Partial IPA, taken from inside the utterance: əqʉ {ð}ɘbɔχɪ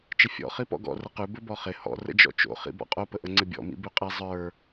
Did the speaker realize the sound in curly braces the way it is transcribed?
no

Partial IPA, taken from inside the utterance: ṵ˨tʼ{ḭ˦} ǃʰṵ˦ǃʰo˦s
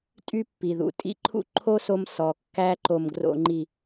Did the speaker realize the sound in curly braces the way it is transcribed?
yes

